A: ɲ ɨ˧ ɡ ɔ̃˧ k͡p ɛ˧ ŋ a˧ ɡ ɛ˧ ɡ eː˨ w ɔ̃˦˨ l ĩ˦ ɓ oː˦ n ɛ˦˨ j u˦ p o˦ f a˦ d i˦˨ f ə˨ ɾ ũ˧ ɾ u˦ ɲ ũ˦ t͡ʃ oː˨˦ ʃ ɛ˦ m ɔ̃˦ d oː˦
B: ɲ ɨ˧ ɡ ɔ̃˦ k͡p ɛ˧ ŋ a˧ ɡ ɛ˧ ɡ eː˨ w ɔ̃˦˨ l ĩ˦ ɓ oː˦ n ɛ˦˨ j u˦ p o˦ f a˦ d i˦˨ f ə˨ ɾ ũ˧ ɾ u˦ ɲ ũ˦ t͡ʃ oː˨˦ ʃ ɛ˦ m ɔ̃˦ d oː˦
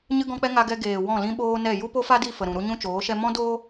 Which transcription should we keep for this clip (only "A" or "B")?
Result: A